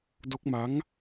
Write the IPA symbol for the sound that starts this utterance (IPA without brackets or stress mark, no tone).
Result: d